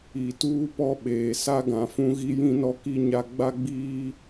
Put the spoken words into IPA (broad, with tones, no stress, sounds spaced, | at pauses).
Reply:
i˨ t uː˦ p ɔ˦ ɓ eː˨ s a˦ ɡ ã˨ f ũ˦ ɣ i˦ j ĩ˦ n ɔ˦ k i˦ ɲ a˦ ɡ͡b a˦ ɡ͡b iː˦